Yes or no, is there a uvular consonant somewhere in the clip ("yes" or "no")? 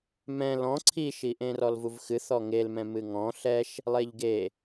no